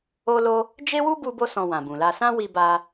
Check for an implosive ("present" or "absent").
absent